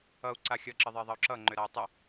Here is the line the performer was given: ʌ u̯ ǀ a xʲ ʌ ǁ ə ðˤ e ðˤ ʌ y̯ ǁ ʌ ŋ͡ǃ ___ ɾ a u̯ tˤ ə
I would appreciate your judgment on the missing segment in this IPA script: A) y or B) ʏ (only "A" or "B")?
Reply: B